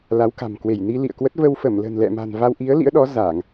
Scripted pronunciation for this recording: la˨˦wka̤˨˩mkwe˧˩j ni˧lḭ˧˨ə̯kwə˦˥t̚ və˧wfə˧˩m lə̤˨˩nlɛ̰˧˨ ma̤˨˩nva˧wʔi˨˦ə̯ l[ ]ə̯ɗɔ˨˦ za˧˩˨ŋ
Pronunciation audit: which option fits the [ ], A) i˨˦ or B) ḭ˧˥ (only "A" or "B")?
B